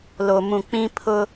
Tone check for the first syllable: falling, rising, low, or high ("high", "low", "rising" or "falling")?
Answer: low